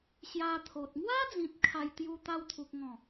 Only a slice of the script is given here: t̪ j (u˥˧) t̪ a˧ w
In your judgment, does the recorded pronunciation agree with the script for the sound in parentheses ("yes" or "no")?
no